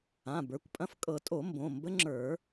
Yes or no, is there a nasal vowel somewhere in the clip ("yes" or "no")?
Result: yes